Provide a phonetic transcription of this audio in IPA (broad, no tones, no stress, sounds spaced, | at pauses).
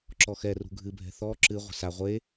ǁ ɔ x ɛ r ṳ ɡʱ ɨ bʱ ɛ̤ θ ɔ ǁ ɨ ʁʷ ɛ̤ s a ʁʷ e